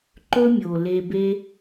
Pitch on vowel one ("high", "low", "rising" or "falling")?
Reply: high